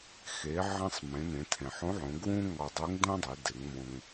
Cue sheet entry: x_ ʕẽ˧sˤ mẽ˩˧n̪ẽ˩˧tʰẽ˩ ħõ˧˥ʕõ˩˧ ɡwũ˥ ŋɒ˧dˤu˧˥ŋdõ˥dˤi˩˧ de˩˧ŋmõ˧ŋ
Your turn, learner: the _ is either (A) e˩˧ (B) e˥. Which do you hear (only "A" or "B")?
A